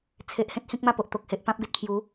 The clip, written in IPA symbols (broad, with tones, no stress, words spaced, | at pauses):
t͡sʰe˨ʔhẽ˦t̚ hĩ˦k̚ma˥˧po˨ʔ t̪o˨k̚he˨ʔpã˦p̚ɡe˨t̚ pʰju˨˦